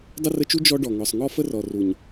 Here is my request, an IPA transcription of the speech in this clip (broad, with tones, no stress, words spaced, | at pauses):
dˤə˦rə˧t͡ʃu˦ d͡ʒɔ˦ɖɔ˨ŋɔ˨sˤ ŋɔ˦fə˦rɔ˨ ru˨ɲ